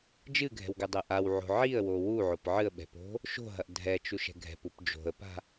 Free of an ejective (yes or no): yes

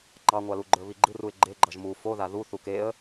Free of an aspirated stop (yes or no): yes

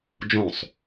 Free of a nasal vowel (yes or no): no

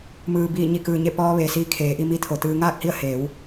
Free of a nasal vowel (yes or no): yes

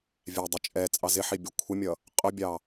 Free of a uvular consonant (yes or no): no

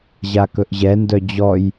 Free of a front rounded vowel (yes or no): no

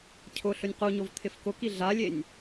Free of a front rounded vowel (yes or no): yes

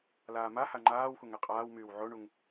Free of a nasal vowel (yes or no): yes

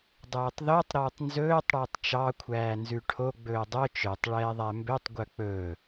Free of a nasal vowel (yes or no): yes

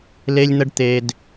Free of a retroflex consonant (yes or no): no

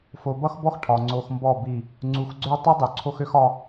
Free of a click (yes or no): no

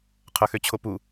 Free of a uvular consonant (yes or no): no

